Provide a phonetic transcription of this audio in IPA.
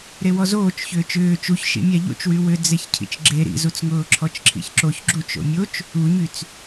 ɾewɔzoːt͡ʃ çʏːt͡ʃʏː t͡ʃuç ʃḭmʲaʎo̰t͡ʃwy wʏ d͡zeçcʰḭt͡ʃɡ͡ǁe ɾḭzut͡sŋʊː ǁʰɔt͡ʃǁʰḭçǁoç ɡ͡ǁut͡ʃ o̰mʲot͡ʃ | uɲyt͡s

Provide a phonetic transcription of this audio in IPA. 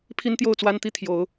pʰi˦nt̪jo˥˨ʊ̯t͡swa˦nt̪i˥˨ t̪ʰjo˨˦ʊ̯

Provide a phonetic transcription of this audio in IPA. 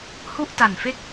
hu˥˩ʔta˨˩nfe˥˩k̚

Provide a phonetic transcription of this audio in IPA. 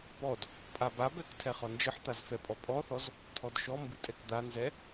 pɔd | pʼababɛk tʰɛχɔnd͡ʒɨħt̪az fɛpʼɔpʼɔθɔz | t̪ʰɔdʃɔmbɨ tʼɛkd̪anzɛ

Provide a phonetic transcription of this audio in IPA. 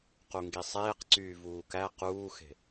quŋɡisˤeːqǀyː vuːkæ quːxe̤

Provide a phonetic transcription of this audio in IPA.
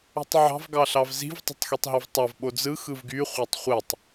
ṳtˤʕɑ̤v ɡɑɬɑvzi̤v tˤṳtˤxitˤɦøvtˤɑv ɓod͡zɯ xɯvɡy χʷætˤχʷetˤ

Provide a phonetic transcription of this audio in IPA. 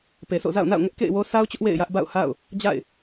pe˨sʰo̰˦˨ za̰˦˨ʊ̯na̰˦˨ʊ̯ ŋɛ˦ʔkḛ˦˨ɪ̯wo˦ sa˦ʊ̯t͡ɕʊ˦ʔ wḛ˦˨ɪ̯jä˦ʔ ba̰˦˨ʊ̯ha̰˦˨ʊ̯ | d͡ʑa̰˦˨ɪ̯

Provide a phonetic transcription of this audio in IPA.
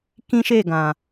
kĩ˦ʃe˦˨ ɡã˨

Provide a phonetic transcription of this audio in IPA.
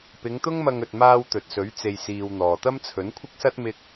pɪ˨˧ŋt̪ʊ˥ŋmɐ˧ŋɵ˨t̚ maː˧w t̪ɵ˨t̚sɵ˨˥ɥ t͡se˨jsiː˨w n̪ɔː˨t̪ɐ˥m t͡sʰɵ˨˥nkʷʰɪ˥k̚sɐ˥t̚ mɪ˥k̚

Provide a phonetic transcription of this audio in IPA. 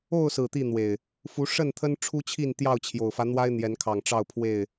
o˥˨ʊ̯sɹ̩˨˩ t̪i˥˨n̪we˨˩ɪ̯ | fu˨˦ʂə˥˨nt̪ʰə˦n ʈ͡ʂʰu˦t͡ɕʰi˥˨n t̪jɑ˥˨ʊ̯t͡ɕʰjo˨˩ʊ̯fä˦ n̪wa˦ɪ̯n̪jɛ˨˦nkʰɑ˨˩ŋ ʈ͡ʂɑ˥˨ʊ̯pʰwe˥˨ɪ̯

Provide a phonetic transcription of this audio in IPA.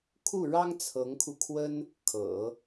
kʰu˥˩ɻɑ˥ŋ t͡sʰɤ˧˥ŋkʰu˧ kʰwə˥n | kʰɤ̰˨˩˦

